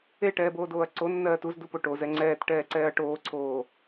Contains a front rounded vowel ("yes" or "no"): no